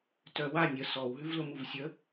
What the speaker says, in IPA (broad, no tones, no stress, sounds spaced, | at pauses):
t œ w a nʲ ə s ɔ w ɦ ʉ v l ʊ m u v sʲ ə